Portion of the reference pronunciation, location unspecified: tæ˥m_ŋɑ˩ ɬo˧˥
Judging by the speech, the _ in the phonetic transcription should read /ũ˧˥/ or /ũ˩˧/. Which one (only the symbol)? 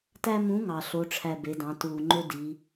ũ˧˥